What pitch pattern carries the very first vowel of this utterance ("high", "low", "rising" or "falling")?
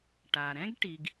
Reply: low